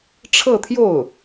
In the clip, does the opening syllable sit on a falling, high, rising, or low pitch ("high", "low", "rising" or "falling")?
falling